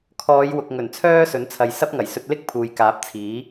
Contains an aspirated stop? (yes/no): yes